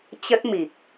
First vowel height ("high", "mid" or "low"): mid